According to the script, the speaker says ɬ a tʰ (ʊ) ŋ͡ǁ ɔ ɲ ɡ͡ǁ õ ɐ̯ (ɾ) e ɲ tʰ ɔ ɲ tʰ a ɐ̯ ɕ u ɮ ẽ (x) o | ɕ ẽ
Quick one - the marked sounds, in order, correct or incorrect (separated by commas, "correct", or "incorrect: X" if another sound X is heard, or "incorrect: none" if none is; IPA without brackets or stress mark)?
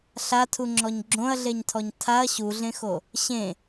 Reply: incorrect: u, incorrect: ɮ, correct